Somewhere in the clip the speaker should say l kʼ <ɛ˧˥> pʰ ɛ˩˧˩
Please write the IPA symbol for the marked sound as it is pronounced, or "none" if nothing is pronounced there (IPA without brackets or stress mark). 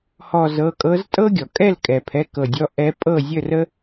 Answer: ɛ˩